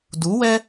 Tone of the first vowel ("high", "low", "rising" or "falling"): rising